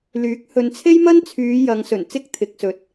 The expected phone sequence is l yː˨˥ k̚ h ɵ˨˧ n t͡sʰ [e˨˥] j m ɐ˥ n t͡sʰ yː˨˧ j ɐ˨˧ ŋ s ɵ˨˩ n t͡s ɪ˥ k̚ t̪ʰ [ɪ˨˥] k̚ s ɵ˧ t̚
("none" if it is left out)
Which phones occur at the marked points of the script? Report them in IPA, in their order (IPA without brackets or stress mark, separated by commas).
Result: e˥, ɪ˨˥